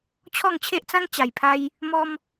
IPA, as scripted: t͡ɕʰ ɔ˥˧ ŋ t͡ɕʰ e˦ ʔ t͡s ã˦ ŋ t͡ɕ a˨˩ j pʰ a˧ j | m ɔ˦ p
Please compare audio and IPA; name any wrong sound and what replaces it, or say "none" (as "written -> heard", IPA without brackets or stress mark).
p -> m